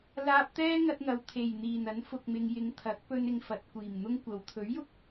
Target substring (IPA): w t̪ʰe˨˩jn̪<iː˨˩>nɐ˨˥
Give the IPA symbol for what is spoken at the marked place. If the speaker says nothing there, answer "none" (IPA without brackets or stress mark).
iː˨˩